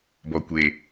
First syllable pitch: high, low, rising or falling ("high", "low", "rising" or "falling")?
low